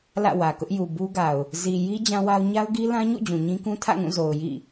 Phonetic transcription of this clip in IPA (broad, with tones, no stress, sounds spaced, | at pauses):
l ä̰˦˨ w ä˨ k ʊ˦ ʔ j u˨ b u˦ ɡ a˨ ʊ̯ | z i˨ j i˦ d͡ʑ ã˦ w a˦ ʊ̯ ɲ a˦ ʊ̯ ɡ i˦ l ã˦ ɲ ṵ˦˨ d͡ʑ ũ˨ ɲ ĩ˦ k ũ˦ tʰ ä̰˦˨ ŋ ũ˦˨ z o˨ ʊ̯ j ḭ˦˨